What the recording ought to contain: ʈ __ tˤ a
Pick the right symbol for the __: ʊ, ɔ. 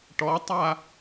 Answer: ɔ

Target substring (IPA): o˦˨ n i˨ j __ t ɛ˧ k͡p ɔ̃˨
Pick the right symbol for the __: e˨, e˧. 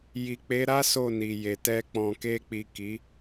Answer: e˨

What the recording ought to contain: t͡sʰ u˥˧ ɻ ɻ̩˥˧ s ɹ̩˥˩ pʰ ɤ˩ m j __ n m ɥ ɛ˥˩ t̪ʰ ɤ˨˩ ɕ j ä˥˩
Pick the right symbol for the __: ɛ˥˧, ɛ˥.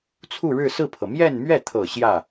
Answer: ɛ˥˧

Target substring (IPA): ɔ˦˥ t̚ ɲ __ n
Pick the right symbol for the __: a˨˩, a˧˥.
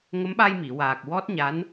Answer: a˧˥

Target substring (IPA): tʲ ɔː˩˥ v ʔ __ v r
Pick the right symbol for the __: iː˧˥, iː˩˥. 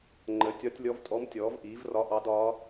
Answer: iː˩˥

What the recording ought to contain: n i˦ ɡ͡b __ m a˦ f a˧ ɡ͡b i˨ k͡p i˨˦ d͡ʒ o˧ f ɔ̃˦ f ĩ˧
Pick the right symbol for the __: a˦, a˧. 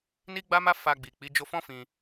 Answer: a˦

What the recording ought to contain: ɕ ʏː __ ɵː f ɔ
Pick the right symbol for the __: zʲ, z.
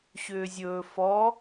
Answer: zʲ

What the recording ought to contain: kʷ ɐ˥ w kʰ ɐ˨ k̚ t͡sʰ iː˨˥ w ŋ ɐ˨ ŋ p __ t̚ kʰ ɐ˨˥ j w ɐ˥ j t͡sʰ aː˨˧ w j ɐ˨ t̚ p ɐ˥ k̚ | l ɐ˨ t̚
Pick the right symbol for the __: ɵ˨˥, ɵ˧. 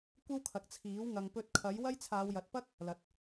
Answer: ɵ˧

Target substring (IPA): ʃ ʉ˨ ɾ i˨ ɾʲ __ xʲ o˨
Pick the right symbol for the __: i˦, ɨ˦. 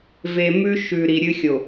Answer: ɨ˦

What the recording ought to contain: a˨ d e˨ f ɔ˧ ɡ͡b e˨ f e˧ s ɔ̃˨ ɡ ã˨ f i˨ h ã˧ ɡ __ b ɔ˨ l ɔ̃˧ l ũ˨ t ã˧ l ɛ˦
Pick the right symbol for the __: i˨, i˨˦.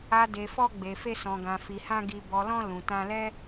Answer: i˨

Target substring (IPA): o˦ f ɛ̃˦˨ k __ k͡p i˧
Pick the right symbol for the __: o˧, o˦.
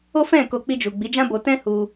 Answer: o˧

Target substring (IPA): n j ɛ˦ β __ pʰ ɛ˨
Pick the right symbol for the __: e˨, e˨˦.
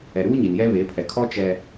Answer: e˨˦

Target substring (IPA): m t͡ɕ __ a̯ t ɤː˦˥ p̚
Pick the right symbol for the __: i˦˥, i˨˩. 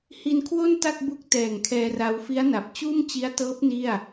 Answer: i˦˥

